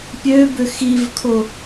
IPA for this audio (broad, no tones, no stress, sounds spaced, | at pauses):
pʲ ø b ʏ x i v kʰ o